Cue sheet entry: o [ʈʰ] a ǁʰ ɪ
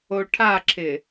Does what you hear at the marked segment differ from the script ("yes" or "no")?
no